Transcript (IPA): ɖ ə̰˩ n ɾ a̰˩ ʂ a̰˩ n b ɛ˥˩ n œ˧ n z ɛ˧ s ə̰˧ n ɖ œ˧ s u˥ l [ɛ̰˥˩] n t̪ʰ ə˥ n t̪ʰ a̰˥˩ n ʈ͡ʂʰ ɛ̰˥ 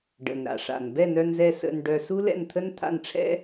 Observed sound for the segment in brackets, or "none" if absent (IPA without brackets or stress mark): ɛ̰˥˩